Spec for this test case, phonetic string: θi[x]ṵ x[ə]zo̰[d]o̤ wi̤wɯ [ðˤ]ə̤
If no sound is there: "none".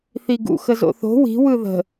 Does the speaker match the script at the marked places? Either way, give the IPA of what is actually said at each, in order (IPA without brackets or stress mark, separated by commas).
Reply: ɡ, ə, θ, ð